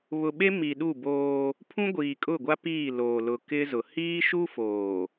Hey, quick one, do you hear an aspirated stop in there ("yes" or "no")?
yes